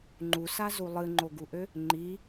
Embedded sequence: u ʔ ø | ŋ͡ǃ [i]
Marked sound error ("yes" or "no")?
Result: no